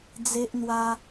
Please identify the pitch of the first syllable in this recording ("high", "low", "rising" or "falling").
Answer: high